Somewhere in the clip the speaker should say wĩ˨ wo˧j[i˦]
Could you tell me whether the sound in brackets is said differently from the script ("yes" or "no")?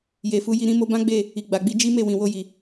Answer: yes